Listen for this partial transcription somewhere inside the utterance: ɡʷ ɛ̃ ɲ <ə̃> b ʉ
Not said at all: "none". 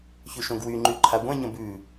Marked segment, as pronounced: ə̃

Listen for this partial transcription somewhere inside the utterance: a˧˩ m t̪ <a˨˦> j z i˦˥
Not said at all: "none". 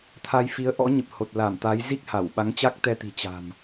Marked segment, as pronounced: a˨˦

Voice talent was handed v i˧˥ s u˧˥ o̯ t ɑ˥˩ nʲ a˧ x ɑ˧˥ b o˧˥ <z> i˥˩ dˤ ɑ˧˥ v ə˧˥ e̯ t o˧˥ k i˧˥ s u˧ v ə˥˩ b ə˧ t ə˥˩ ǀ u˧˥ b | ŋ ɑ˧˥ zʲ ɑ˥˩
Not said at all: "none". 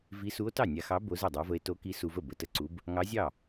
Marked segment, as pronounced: z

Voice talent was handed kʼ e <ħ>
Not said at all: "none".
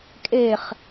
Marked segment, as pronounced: χ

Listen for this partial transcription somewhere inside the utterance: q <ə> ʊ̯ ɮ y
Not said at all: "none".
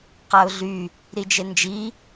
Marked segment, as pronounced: a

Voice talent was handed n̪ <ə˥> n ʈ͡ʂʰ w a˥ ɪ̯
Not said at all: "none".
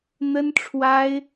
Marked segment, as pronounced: ə˥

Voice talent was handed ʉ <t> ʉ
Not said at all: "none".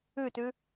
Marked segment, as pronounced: t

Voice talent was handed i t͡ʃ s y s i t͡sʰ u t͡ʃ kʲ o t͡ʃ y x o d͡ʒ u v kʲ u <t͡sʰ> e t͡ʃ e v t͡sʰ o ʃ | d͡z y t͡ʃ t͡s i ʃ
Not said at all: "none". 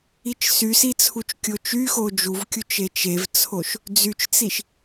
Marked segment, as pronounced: t͡ʃ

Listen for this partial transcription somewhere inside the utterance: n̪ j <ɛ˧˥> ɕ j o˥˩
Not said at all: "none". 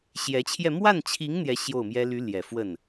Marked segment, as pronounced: ɛ˧˥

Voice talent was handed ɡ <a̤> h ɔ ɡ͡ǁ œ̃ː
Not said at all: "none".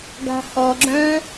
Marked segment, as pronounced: a̤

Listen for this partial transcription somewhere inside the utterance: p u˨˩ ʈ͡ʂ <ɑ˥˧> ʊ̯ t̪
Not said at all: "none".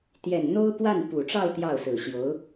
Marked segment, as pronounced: ɑ˥˧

